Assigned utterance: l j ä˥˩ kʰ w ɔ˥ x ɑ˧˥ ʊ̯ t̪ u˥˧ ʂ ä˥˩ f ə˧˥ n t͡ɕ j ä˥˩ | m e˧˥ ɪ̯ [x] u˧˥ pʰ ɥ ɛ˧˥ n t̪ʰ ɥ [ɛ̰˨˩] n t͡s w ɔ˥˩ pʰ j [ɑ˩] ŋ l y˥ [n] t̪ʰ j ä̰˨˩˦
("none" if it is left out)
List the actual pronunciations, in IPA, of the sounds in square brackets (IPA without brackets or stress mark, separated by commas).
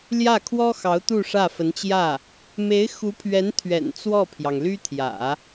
x, ɛ̰˨˩, ɑ˩, none